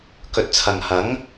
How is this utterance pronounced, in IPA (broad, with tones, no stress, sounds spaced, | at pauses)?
k ɵ˨ t̚ t͡sʰ ɐ˨ ŋ h ɐ˨˥ ŋ